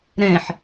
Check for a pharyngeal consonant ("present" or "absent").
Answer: present